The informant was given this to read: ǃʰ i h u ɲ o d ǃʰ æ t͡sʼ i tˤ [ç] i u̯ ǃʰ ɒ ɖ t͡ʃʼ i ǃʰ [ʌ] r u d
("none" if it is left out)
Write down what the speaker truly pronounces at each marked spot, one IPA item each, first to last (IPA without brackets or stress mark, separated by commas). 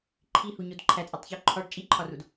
ç, ɒ